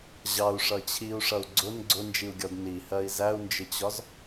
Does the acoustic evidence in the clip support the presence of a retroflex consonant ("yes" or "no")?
yes